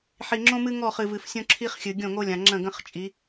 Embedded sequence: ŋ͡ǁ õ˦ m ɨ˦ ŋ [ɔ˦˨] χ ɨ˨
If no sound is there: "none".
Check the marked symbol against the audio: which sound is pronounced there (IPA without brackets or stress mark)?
ɔ˦˨